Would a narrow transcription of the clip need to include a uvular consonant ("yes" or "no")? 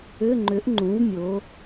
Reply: no